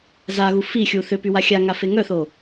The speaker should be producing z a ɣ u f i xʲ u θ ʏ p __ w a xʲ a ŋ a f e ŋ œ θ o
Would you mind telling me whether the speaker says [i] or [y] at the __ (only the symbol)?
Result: y